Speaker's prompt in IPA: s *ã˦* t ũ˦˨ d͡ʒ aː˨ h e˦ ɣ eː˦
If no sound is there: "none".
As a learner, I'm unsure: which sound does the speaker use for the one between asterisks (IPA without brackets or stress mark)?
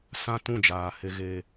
ã˦